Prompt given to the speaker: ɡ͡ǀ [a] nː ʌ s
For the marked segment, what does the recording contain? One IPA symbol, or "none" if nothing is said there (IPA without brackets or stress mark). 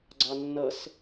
ɑ